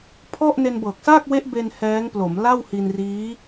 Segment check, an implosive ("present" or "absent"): absent